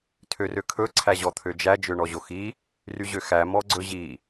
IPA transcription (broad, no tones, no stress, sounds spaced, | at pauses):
tʰ ø r ø kʰ ɵ ǀʰ æ ʑ ɔ t̪ʰ ø d͡ʒ æ d͡ʒ ø ɳ ɔ ʑ o x i | r y ʑ ø x æ m ɔ ɡ͡ǀ ɵ ʑ i